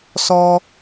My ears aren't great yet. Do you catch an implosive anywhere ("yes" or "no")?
no